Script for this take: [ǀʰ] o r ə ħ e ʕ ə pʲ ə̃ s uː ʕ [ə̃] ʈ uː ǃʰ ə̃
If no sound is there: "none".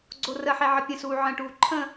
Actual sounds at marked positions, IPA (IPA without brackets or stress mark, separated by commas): ɡ͡ǀ, ə̃